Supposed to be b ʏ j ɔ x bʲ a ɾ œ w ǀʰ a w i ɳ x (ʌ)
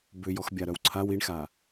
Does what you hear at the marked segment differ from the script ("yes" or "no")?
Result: yes